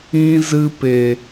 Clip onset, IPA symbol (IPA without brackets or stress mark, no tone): ĩ